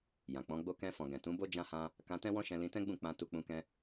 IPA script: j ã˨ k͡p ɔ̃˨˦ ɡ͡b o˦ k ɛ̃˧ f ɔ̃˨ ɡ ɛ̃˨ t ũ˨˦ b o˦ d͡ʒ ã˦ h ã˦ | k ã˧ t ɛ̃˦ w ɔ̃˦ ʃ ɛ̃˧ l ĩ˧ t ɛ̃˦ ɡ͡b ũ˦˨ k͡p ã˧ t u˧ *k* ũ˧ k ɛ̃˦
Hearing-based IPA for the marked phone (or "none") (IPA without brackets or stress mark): k͡p